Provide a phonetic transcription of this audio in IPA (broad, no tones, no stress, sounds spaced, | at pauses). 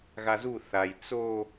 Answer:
ɣ a z u θ a j t͡s o